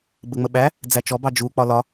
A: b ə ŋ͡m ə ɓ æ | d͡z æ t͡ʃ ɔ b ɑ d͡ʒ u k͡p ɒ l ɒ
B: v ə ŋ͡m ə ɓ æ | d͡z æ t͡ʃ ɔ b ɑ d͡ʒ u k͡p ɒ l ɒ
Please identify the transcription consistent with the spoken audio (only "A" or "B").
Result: A